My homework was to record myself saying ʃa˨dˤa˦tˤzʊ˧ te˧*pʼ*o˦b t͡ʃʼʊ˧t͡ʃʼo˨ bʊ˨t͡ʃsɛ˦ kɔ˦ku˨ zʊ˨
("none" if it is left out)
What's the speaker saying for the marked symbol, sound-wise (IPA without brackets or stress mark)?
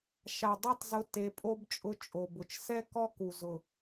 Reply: pʼ